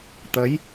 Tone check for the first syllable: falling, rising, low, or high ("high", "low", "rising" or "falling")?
rising